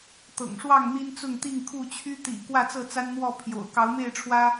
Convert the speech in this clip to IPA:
t̪ ɤ̰˨˩ ŋ ʂ w ɑ˥˨ ŋ n̪ i˦ n t͡s ʊ˥˨ ŋ t̪ i˥˨ ŋ kʰ u˥˨ t͡ɕʰ y˦ t̪ ḭ˨˩ k w ä˥˨ t͡s ɤ˥˨ t͡s a˦ n n̪ w ɔ˥˨ pʰ j o̰˨˩ ʊ̯ k ɑ˨˦ ʊ̯ m e˥˨ ɪ̯ ʈ͡ʂʰ w ä˦

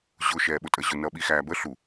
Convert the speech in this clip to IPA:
ʑ ʊ ʃ ɛː ɓ ʊ tʼ ə ʑ ʊ n ʌ ɓ i x æː b ə ɬ u

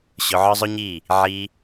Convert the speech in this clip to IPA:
ɕ ʊ˧ ʕ ɒ˦ zˤ ʊ˦ ɲ i˦˨ | ʕ i˧

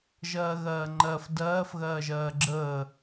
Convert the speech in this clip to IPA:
ʒ ɜː ɣ ɜː ŋ͡ǃ ɜ f d ɜː f ɣ ɜː ʒ ɜː ɡ͡ǁ əː

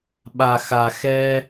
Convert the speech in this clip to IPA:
ɓ a˨ x a˨ x ɛ˧

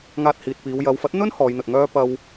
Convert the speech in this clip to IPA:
ŋ aː˧ t̚ h iː˨ t̚ p iː˨˧ w j ɐ˨˧ w f ɐ˨˥ t̚ n̪ ɵ˥ n h ɔː˨˧ j n̪ ɵ˨ t̚ ŋ œː˥ p ɐ˧ w

